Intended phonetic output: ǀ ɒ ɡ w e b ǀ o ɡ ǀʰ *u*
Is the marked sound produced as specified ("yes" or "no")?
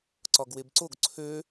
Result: no